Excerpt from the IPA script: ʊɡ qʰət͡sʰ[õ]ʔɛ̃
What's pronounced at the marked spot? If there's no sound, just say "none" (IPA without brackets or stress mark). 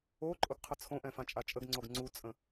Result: õ